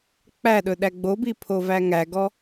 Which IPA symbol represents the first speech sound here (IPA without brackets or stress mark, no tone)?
k͡p